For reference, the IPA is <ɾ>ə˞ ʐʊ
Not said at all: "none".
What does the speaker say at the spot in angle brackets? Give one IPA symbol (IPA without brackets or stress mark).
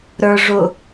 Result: ɾ